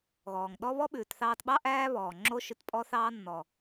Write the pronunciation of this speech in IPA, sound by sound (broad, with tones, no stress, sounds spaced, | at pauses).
ɣ ɔː˨ ŋ ɗ ɔ˦ β ɔ˦ ɓ ʉː˨ t θ ɑː˧ t ɓ ɑ˦ ʔ æː˦ β ɔː˨ ŋ͡ǁ o˦ ʃ ʉ˧ t pʼ ɔ˦ θ ɑː˦ nː ɔ˨